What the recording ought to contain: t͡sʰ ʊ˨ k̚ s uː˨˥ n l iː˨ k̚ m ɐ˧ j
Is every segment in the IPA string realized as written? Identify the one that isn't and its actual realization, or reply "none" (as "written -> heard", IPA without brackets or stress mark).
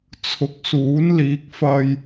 m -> f